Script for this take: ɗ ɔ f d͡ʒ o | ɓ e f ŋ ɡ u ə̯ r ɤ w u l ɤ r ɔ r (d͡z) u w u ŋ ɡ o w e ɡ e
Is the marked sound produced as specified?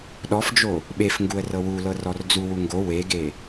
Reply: yes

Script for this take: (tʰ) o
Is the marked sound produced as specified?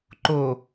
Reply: no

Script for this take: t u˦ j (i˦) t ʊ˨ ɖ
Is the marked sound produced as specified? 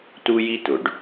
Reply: yes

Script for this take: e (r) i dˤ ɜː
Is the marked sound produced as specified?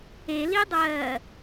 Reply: no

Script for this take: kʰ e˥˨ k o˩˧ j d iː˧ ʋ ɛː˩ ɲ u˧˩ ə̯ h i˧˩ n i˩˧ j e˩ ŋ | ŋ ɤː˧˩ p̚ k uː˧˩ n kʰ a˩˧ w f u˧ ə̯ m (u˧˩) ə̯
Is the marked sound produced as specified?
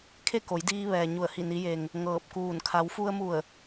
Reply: yes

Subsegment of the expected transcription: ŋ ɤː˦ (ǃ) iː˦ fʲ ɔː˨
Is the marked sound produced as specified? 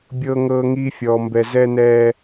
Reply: no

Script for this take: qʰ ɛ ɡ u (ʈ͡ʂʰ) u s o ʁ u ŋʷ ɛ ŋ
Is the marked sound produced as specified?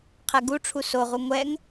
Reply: yes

